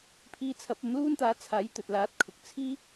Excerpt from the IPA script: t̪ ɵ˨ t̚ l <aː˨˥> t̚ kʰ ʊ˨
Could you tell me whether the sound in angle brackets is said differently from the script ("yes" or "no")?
no